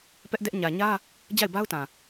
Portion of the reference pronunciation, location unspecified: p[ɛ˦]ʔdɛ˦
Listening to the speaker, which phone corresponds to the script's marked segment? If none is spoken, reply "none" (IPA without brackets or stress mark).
ɛ˦